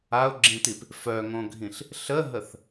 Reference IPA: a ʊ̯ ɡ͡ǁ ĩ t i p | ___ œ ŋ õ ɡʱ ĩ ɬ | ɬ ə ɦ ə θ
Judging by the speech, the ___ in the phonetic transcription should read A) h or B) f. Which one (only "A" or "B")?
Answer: B